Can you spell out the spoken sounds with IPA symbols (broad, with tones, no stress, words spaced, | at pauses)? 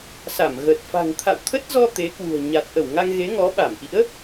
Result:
sa˧˩mɣə˨˩t̚ fa̤˨˩ŋt̪ʰa̰˧˨w t̪ʰə˦˥t̚zɔ˧ t̪e˨˦kwṳ˨˩ə̯ɲa˨˩t̚ ʔə˧˩wŋa˧ŋɣe˨˦ŋɔ˨˦ ɓa˧˩mʔḭ˧˥ə̯